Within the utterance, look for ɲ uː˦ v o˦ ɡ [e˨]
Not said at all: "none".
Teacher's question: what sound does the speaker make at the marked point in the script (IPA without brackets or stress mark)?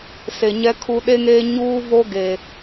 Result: e˨